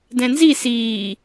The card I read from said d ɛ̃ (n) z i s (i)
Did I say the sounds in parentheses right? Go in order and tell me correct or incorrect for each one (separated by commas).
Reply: correct, incorrect